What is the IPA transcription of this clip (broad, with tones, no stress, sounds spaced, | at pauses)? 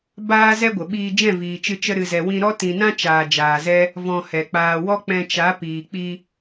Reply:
b aː˦ z ɛ˦ ɡʷ ə˨ ɓ iː˧ d͡ʒ ɛ̃˦˨ v iː˨ t͡ʃ ɨ˧ t͡ʃ ə˦ ɾ ɨ˧ z ɛ˧ w ĩ˧ ɾ ɔ˦ t ĩ˧ n ã˦ t͡ʃ aː˨ d͡ʒ aː˨ z ɛ˦ | v ɔ̃˧ h ɛ˨ k͡p aː˧ w ɔ˦ k͡p ɛ̃˧ t͡ʃ a˨˦ p iː˨ k͡p i˧